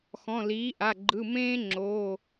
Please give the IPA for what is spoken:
xɔ̃˩˧˩liː˩˥ʔa˩˧˩ ɡ͡ǃɯ˩˧˩mẽː˦ ŋ͡ǁoː˩˧˩

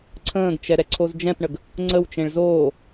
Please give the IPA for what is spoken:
ǀʰə̃ːɡt͡ʃɛ ɾɛǀʰozd͡ʒɛ̃pɳəɡ | ŋ͡ǀəwt͡ʃẽɭ zoː

